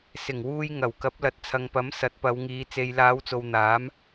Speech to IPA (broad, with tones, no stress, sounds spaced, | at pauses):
s ɪ˨˩ ŋ w uː˧ j ŋ ɐ˨˩ w k ɐ˨˥ p̚ l ɐ˨ t̚ t͡sʰ ɐ˨ ŋ p ɐ˨˥ m s ɐ˨˥ t̚ p ɐ˨˧ w ŋ iː˨˧ t͡s e˨ j l aː˨˧ w t͡s o˨ w n̪ aː˨˥ m